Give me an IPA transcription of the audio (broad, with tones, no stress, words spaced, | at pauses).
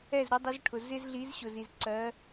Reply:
ɛ˥˨zɾʊ˧˥dˤʊ˧˥zʈʰʊ˨ zɪ˥zɮi˧˥zɕʊ˨z i˨z ǀɜ˧˥